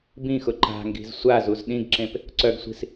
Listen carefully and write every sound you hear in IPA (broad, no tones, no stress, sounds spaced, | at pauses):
b ĩ x ʊ ǃ a̤ ŋ ɡ i̤ z sʷ a z u z ɗ ĩ ɡ ǁ ẽ p | ǀ œ ɡ sʷ i̤ s